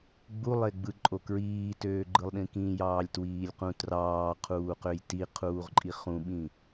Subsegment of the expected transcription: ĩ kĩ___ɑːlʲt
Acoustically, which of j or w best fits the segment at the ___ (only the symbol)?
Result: j